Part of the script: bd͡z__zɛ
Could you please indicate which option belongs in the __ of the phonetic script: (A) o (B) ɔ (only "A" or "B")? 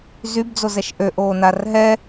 A